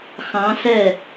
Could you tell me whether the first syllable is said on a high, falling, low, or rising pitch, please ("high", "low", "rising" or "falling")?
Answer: rising